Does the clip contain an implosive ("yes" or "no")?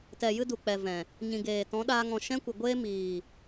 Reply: yes